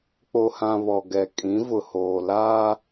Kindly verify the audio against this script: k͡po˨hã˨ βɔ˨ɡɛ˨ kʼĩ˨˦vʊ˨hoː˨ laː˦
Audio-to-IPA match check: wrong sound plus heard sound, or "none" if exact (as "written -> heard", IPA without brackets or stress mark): none